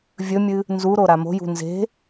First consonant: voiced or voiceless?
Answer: voiced